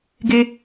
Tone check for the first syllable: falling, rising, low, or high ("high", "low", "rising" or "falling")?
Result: high